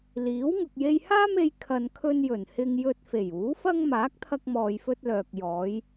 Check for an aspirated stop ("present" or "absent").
present